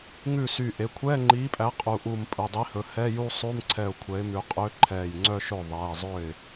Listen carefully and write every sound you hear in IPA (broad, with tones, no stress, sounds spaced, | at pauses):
ŋ ʉ˥˩ s y˧˩ ʔ e˩˧˩ kʷʰ ɛː˧˥˧ ŋ͡ǃ iː˨˥ pʼ æ˨˥ qʼ u˩˧˩ ʔ u˧˩ m pʼ ɵ˩˧˩ dˤ i˨˥ h ɵ˩˧˩ h ɛ˧˥˧ j u˥˧ sˤ ʉ˧˥˧ m ǀʰ ɛ˧˩ ʊ̯ kʷʰ ɛ˨˥ ɪ̯ m ʉ˨˥ qʼ ø˧˥˧ ǃʰ ɛː˧˩ j ŋ͡ǀ œ˥˧ ʃ ɵ˥˩ ðˤ ɛː˩˧˩ zˤ ø˥˩ ɪ̯